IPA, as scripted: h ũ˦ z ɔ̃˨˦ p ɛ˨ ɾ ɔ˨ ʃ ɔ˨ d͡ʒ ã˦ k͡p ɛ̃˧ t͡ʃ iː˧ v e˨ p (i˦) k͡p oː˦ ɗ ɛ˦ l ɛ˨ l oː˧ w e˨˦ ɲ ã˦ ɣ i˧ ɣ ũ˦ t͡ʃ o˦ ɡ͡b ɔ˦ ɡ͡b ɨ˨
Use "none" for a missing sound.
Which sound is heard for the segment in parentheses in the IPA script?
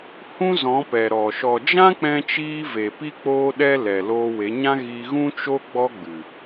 i˦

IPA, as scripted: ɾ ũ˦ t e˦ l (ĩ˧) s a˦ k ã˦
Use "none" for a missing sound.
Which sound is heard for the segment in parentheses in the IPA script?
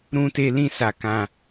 ĩ˦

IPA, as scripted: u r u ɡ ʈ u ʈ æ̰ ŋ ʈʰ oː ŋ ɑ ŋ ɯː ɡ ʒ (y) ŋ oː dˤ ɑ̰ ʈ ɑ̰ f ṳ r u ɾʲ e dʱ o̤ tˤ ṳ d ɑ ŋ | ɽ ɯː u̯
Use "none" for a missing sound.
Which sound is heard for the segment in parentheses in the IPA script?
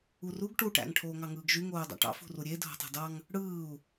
y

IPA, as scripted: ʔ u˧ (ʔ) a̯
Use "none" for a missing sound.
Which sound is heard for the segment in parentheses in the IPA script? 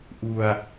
none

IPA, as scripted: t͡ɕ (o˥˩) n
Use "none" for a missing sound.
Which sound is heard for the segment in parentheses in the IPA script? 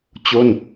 o˥˩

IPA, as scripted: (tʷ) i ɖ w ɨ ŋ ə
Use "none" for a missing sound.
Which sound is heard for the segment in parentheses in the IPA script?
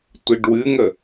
tʷ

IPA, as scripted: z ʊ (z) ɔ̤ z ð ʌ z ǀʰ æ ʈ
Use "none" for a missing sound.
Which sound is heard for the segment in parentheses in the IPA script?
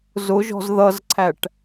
ʒ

